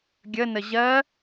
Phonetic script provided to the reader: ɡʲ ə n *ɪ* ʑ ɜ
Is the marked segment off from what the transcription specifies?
yes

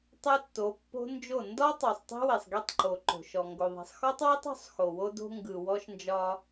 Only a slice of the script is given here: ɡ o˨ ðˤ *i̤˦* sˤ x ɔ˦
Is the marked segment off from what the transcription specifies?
yes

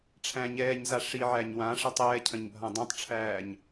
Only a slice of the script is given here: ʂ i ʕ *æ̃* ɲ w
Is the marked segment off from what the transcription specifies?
yes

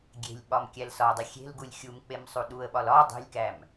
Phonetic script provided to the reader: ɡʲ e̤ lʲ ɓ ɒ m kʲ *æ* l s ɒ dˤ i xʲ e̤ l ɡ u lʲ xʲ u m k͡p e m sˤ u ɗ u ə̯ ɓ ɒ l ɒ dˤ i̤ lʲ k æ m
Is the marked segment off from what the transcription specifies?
no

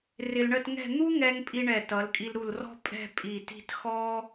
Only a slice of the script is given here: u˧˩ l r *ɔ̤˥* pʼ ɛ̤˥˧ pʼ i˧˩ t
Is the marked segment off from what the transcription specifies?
no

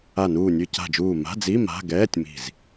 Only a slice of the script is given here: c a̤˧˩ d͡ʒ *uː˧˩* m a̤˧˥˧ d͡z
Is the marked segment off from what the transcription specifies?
no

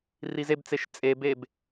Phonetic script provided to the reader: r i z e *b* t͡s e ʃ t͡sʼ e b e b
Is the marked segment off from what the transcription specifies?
no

